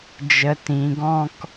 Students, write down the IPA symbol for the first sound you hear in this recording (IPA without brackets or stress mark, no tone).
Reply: d͡ʒ